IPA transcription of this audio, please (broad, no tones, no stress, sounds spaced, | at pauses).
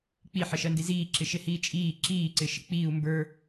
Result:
k͡p i ħ ɪ ʃ ɜ n d i z iː ǁ ɪ ʃ ɪ h iː t͡ʃʼ iː ǁ iː ǀ ɪ ʃ ɪ k͡p iː u̯ m b ə˞